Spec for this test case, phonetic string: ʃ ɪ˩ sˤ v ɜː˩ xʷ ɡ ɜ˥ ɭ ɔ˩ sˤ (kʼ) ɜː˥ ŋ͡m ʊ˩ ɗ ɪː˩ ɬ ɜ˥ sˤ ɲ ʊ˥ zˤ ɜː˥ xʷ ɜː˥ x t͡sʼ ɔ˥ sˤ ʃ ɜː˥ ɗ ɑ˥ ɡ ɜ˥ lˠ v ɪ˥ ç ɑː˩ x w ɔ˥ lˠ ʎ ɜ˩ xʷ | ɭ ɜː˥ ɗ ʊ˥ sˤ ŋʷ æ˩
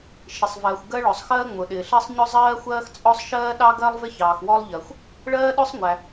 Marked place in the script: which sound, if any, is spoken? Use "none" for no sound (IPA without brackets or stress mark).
x